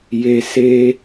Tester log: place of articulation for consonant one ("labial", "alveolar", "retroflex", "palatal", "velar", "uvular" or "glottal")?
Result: palatal